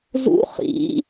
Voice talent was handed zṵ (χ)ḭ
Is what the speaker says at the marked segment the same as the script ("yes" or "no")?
yes